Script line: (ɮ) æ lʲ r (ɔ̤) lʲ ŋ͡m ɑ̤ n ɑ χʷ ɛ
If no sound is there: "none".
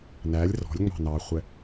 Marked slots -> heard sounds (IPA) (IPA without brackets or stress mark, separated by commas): n, ɔ̤